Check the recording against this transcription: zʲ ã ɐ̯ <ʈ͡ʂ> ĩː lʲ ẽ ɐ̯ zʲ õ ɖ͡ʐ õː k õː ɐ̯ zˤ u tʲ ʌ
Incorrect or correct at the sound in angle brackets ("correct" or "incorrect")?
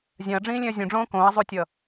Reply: incorrect